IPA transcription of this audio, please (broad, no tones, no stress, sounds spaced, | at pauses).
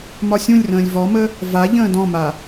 m ɒ sʲ ũ lʲ r ə̃ː lʲ v ɔ m ə | v a ʎ ə̃ː d ɔ̃ m a